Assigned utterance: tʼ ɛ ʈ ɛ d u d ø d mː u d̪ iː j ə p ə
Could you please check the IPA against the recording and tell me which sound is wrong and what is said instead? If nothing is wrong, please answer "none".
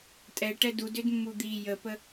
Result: none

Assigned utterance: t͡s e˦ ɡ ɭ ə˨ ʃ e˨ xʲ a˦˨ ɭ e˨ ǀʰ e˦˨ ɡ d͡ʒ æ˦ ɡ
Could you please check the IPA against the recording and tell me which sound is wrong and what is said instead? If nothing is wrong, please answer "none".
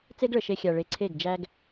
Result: a˦˨ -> a˨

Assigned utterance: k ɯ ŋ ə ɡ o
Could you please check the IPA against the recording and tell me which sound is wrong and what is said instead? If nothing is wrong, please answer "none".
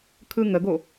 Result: k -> kʰ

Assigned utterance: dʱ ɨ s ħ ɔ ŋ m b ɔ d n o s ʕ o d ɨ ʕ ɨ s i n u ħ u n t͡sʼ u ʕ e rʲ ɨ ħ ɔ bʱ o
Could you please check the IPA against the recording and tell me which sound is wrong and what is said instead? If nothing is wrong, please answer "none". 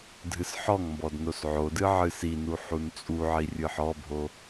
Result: e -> i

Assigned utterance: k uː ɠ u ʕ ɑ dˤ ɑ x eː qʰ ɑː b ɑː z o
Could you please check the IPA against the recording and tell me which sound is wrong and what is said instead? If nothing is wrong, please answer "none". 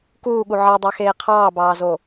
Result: none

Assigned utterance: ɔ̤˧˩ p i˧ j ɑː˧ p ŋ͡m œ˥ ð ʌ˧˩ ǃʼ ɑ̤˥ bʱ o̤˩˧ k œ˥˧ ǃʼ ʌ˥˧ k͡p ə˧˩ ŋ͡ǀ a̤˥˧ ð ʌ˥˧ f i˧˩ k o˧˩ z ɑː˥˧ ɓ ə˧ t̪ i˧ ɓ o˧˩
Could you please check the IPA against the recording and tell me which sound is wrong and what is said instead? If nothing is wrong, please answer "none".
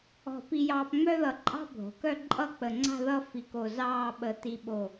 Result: none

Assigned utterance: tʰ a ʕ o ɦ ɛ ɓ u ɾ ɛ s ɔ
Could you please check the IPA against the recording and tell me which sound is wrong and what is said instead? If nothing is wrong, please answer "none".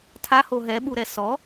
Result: ʕ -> h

